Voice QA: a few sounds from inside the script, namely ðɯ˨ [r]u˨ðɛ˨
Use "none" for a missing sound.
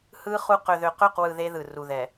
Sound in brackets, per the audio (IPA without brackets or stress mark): r